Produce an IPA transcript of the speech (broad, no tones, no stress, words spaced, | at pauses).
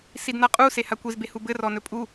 sidnaqʼuse hakʷizbehu bɘrɔnɵ pʼu